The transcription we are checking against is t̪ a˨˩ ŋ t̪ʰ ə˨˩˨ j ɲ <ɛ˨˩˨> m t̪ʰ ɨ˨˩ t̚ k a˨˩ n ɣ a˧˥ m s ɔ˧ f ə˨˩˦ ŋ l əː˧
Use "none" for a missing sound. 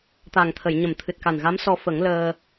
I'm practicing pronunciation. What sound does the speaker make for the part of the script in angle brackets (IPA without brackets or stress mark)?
ə˨˩˨